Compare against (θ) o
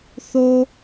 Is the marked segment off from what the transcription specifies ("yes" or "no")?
no